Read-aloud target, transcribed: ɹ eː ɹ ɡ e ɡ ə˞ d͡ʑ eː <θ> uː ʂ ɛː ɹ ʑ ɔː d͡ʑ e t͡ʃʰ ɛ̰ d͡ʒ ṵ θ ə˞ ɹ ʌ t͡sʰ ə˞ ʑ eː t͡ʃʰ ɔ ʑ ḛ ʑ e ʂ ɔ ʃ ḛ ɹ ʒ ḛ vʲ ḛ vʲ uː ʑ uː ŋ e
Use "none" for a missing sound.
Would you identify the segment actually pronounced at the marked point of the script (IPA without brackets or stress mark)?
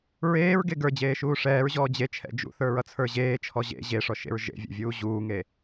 ʃ